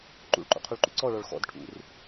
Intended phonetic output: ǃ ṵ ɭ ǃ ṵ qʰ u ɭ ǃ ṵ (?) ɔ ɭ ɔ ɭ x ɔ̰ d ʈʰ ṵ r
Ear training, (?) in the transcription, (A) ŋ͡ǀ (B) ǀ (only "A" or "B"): B